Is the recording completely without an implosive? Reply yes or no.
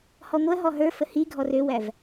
yes